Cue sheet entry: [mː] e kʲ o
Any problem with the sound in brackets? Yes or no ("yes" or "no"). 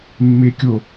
no